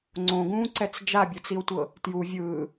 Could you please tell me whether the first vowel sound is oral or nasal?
nasal